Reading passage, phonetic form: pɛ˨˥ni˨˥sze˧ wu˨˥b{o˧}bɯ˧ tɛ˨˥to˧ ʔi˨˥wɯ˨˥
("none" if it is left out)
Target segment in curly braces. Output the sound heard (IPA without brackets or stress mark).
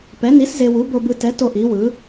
o˧